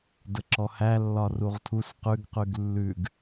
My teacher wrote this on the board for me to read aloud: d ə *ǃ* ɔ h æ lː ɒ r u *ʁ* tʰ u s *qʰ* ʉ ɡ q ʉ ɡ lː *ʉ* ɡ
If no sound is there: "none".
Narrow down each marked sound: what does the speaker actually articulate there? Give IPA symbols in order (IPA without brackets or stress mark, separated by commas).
ǁ, ʁ, q, ʉ